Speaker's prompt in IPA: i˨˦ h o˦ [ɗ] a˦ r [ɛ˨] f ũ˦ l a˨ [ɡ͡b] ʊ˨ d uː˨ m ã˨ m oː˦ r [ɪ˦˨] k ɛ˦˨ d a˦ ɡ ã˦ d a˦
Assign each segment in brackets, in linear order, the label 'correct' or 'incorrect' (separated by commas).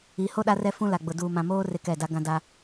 correct, incorrect, correct, correct